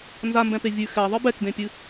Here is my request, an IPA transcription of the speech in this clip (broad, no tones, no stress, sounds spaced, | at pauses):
n z a m b ɛ̃ p e vʲ ʉ x ɛ ðˤ ɨ b ɛ k d ẽ pʲ ɨ